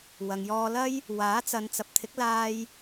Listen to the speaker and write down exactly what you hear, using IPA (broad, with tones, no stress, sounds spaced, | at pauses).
w ɐ˨ ŋ j ɔː˧ l ɐ˥ j | w aː˨˥ t͡s ɐ˨˧ n t͡s ɐ˨˥ p̚ t̪ʰ ɪ˨˥ k̚ l aː˧ j